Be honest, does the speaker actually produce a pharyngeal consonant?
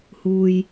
no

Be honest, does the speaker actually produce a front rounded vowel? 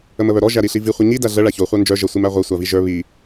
yes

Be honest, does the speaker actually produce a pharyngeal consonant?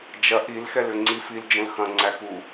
no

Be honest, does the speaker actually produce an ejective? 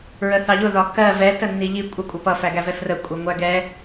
yes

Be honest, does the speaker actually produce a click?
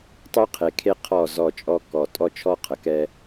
no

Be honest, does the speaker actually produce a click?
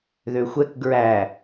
no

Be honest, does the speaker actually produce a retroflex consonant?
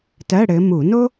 yes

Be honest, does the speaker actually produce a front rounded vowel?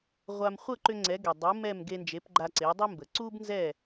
yes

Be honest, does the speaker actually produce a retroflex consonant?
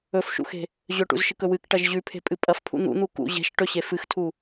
yes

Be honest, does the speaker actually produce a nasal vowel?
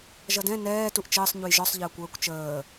yes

